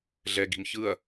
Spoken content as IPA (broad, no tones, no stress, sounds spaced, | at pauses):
ɮ ɛ ɡ i̤ m ç ɯ ɐ̯